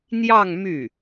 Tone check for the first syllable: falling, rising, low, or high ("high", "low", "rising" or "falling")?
falling